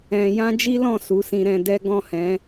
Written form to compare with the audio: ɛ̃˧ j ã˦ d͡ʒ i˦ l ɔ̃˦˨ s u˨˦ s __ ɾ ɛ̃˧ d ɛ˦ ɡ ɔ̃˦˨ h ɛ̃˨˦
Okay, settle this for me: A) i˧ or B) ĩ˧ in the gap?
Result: B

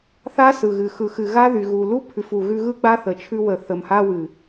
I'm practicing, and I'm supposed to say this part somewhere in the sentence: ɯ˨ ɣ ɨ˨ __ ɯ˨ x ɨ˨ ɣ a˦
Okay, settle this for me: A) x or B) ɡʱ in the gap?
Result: A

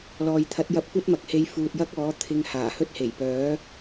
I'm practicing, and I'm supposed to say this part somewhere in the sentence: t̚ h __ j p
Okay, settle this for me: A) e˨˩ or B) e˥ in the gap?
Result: A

